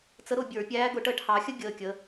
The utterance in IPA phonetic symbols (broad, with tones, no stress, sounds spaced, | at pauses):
t͡s ə˧˥ ɾ ʊ˦˨ bʲ ə˞˧˩˧ pʲ æː˧˥ ɡ ʊ˧˩˧ ʈ əː˦˨ ʈ h ɑ˧˩˧ xʲ ə˥ ɡʲ əː˩˧ kʲ ə˩˧